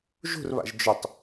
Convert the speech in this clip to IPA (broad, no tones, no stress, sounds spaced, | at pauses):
ʒ ṳ r β a̰ ʒ d͡ʒ ɵ tˤ